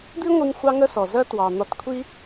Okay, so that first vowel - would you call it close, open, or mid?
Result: close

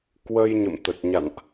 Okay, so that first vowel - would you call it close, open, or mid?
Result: mid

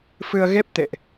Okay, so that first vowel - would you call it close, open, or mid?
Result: close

